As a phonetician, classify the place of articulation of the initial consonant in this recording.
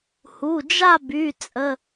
glottal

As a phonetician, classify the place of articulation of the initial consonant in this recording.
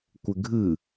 velar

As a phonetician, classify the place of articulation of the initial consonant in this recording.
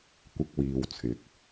velar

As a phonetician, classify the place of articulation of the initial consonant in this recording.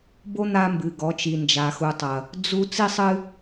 labial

